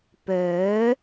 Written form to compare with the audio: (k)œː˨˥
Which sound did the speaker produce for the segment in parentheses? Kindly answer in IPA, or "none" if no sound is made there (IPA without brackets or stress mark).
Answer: p